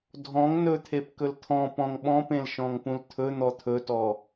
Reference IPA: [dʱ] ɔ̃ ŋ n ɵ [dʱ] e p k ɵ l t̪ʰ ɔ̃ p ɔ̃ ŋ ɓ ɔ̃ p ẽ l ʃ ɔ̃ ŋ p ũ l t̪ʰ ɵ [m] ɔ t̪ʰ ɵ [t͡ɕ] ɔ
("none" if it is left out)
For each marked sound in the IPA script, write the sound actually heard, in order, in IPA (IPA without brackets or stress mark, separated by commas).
dʱ, t̪ʰ, n̪, t